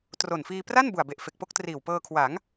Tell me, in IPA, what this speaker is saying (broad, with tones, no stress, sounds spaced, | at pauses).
t r o˨˩ n f iː˧ p r a˥˩ n b u˨˩ a̯ b e˨˩ ʔ f e˨˩ k̚ p o˥˩ k̚ t r iː˨˩ w p ɤː˧ kʰ w a˩˦ ŋ